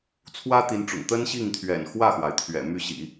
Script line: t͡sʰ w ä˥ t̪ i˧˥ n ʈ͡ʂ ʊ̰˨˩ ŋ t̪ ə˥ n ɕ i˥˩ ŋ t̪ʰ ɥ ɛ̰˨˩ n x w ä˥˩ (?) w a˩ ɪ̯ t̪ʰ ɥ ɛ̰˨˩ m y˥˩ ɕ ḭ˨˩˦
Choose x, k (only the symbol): x